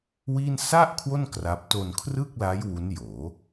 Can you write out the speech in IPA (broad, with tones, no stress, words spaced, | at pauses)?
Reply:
wi˥˩n sa˥˩ʔ kʰwo˥˩n kra˦˥p̚ to˧nkʰrɯ˥˩k̚la˦˥j wu˦˥njoː˩˦